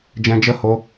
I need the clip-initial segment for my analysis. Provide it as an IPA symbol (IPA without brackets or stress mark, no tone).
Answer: d͡ʒ